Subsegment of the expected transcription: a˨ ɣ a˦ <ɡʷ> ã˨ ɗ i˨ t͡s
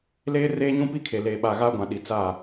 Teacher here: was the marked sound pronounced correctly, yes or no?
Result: yes